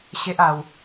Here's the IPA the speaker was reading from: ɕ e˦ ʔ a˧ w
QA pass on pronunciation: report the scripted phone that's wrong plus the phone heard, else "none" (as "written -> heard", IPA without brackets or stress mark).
none